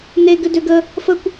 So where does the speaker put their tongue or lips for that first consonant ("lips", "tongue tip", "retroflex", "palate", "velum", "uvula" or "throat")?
tongue tip